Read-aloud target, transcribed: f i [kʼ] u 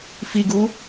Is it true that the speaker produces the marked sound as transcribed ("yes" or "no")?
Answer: no